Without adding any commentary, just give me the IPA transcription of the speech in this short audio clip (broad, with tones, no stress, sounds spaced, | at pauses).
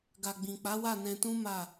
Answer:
ɡ a˨ ɡ͡b ĩ˨ k͡p a˨˦ w a˦˨ n ɛ̃˧ t ũ˦ m a˦˨